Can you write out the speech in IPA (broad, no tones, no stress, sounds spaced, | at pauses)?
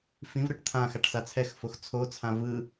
f ĩ v ɾ ɯ ʈ t̪ʰ ã x a ʈ s a t͡sʰ ɛ x f o x t͡sʰ o t͡sʰ ã v ɯ